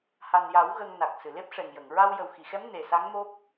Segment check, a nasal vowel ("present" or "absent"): absent